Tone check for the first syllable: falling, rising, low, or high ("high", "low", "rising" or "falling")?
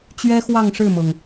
high